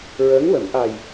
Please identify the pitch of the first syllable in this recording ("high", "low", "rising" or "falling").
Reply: rising